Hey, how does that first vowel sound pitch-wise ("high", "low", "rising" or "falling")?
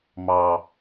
low